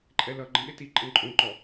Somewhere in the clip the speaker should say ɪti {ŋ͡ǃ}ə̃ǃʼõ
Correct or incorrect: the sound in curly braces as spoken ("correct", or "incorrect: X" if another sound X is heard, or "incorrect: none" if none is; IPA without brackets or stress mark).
incorrect: ǃʼ